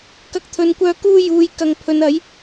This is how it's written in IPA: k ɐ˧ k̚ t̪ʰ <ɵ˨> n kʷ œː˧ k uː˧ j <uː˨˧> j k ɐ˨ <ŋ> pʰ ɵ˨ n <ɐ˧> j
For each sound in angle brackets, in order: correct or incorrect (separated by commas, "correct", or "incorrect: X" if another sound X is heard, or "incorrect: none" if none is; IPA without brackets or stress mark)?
correct, correct, correct, incorrect: ɐ˨˥